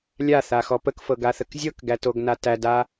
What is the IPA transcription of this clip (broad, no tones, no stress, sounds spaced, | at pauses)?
lʲ a θ a x ɔ p ə k f ɤ ɡ a θ ə k zʲ ɤ k ɡ æ t o ɡ n a t æ d a